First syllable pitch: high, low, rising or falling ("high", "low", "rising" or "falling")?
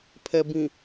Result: low